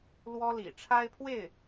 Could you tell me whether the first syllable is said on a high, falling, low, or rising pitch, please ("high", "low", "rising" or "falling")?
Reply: high